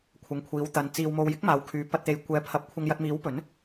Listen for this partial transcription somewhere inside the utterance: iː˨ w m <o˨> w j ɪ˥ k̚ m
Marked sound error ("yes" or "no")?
no